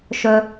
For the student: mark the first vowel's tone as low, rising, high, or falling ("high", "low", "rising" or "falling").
low